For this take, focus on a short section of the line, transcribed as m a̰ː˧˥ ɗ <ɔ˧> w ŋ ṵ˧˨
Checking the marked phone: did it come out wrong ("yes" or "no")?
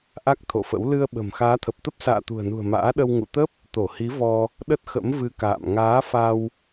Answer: yes